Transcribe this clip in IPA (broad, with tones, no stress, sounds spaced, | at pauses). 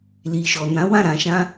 l i˨ ʃ ɔ˨ n ã˨˦ w ã˦˨ ɾ ã˧ ʃ ã˦